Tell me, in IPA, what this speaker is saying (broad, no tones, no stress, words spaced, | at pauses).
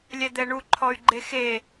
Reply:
lʲɛd̪ɛɳu ǃʰɔy̯ɡ͡ǃexe